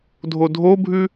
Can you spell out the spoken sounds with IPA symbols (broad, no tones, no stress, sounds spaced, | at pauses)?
dʱ o dʱ o bʱ ʉ